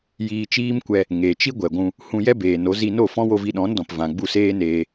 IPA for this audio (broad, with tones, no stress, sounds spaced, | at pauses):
j iː˧ t͡ʃ iː˦ m kʷ ɛ˧ | ŋ e˨ t͡ʃ i˦ ɡʷ ɛ˨ ɡʷ ũ˧ | h ũ˧ j ɛ˦ b eː˨ n o˨˦ z i˧ n o˦˨ f ɔ̃˦ w o˧ v i˧ ɗ ɔ̃˨˦ n d ɔ̃˨ p v ã˨ ɡ͡b u˦˨ s eː˦ n eː˧